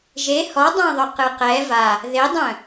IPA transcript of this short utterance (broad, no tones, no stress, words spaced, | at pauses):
ʒe hɔdˤãðˤœqɨ qɛ va | ðedˤœ̃